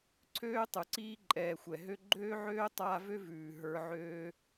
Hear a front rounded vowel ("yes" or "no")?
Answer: yes